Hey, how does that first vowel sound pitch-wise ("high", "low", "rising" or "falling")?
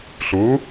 rising